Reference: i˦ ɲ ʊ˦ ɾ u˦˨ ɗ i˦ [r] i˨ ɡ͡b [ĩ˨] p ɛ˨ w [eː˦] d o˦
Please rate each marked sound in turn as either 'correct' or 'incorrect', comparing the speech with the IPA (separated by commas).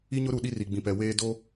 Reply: correct, correct, correct